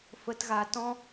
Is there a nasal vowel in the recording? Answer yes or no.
yes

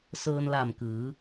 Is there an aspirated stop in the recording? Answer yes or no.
no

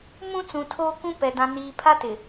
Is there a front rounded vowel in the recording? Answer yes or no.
no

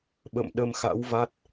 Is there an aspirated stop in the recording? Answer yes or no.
no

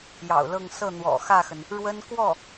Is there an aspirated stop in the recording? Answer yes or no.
no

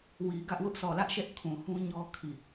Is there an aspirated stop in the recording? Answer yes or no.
yes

